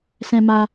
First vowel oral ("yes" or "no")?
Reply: no